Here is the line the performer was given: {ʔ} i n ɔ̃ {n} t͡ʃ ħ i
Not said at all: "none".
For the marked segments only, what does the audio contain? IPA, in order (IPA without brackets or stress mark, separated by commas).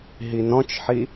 ɦ, none